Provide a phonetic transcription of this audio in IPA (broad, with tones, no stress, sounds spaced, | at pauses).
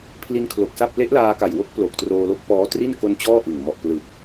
pʰ l i˧ n kʰ l o˨˩ k̚ s a˥˩ p̚ l e˦˥ ʔ l aː˧ k a˨˩ j w o˦˥ k̚ p l o˨˩ k̚ t r oː˧ l o˦˥ k̚ p ɔː˦˥ t r i˥˩ n k o˧ n t͡ɕ ɔː˥˩ ʔ ɯ˨˩ ŋ m ɔ˨˩ ʔ p l ɯ˨˩ k̚